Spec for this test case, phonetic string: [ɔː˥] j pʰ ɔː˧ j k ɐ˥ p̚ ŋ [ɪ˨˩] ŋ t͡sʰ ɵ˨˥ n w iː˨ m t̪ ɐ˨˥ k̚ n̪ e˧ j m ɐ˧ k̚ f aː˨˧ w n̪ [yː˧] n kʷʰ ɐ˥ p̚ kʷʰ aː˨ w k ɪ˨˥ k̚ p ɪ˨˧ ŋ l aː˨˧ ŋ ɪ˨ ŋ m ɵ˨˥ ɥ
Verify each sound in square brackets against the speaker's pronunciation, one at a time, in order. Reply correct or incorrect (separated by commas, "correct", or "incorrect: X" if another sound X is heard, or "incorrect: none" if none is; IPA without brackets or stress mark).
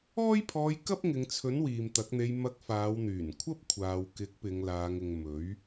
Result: correct, incorrect: ɪ˨˧, incorrect: yː˨˩